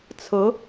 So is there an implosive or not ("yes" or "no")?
no